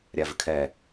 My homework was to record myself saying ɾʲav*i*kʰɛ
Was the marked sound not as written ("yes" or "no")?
yes